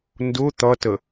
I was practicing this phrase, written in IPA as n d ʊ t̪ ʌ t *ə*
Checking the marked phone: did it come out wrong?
no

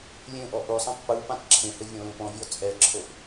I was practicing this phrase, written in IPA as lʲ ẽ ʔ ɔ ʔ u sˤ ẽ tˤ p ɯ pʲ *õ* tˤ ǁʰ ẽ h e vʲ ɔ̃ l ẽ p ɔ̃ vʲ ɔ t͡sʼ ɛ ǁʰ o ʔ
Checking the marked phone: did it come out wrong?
yes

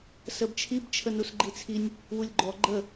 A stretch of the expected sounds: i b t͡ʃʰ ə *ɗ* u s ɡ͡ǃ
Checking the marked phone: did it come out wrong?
yes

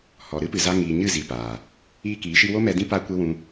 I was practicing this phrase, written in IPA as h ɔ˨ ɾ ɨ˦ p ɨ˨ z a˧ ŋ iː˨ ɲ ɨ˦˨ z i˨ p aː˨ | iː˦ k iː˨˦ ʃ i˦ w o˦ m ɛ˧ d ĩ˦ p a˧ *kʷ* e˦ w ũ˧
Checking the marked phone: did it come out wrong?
no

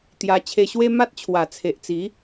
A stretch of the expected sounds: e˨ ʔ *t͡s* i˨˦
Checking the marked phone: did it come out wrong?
no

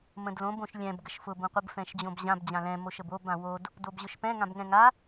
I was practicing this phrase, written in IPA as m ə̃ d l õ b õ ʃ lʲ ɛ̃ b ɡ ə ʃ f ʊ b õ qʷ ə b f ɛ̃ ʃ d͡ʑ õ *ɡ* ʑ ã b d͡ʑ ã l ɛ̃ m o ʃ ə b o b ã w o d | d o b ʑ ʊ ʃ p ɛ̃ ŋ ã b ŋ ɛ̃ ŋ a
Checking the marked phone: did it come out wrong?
yes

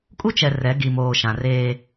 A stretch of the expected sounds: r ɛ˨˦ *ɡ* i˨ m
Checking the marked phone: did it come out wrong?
no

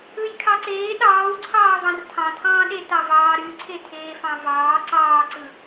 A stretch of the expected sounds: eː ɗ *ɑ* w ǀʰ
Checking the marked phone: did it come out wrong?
yes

